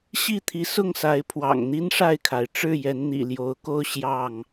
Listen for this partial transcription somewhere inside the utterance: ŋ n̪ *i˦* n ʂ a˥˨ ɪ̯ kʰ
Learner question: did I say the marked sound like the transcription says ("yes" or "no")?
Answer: yes